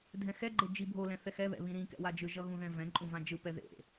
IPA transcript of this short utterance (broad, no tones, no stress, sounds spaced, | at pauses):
dʱ ɛ̃ x ɛ ɡ͡ǃ e d͡ʒ i bʱ o l ɛ̃ θ ɛ x ɛ β ɛ̰ β ĩ ɾ ĩ k ɛ̰ w a d͡ʒ ɯ ʒ ʌ ɣ ũ ð ɛ̃ v ɛ̃ ǃʼ ũ v ã d͡ʒ ɯ p ɛ ð ḛ